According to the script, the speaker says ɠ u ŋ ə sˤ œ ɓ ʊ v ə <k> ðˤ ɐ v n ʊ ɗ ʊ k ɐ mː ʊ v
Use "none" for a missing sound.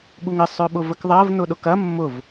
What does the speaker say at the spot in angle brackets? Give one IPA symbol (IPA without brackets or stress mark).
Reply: k